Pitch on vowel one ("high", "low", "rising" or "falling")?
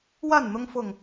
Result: falling